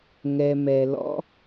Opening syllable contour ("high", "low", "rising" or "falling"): low